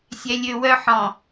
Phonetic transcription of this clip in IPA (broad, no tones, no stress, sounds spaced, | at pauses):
sʲ ɛ lʲ ø w œ ħ ɔ̃